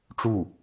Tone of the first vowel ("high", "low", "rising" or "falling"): falling